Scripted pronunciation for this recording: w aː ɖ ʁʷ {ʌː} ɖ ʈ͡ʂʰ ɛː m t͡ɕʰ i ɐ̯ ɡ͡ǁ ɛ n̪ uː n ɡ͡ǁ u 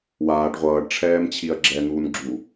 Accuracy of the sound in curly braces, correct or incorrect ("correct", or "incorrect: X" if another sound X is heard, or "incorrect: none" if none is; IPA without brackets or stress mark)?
correct